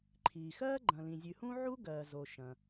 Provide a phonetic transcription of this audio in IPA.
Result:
ǃʰiː˩xɜː˥ ɡ͡ǃɐ̃˩lĩ˩zʲʉ˩hũ˥ ʕu˥ɡɜː˩zo˩ ʃɐ̃˩

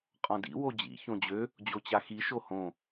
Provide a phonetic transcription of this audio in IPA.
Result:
qʼɔ̃dḭ wod͡ʑḭ çõd͡ʑø | d͡ʑot͡ɕaxi ʃohõ

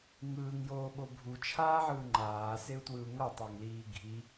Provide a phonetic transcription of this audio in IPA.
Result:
ŋɯːŋjoːɓo bʱut͡ʃʰaːʕɯː ŋ͡ǃaːseu̯twɯu̯ ŋʌtˤaŋliː ɡʱi

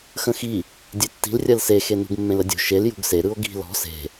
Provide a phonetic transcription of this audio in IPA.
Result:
xə̃xi | dʲetːi̤l rʲɜlsexe nṳɡmːẽlədʲṳ ʃel jṳɡse ɾɯo̯ɡi̤ lɔ̤ se̤

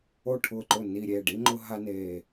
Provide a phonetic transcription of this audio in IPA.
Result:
o˥˩ʈʰʊ˥˩ǃʊ˥˩ ni˧˩ɾʲe˥˩ɖi˥ ŋ͡ǃʊ˥ɦa˥ ne˧˩

